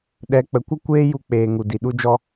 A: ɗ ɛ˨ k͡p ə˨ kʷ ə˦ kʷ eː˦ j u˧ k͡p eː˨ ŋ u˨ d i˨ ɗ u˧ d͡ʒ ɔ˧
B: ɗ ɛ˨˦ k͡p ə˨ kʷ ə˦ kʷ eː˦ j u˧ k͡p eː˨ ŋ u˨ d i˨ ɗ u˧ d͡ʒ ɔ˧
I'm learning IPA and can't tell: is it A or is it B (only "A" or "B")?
B